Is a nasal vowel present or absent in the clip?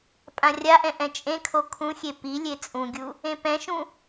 present